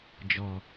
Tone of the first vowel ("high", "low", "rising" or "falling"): low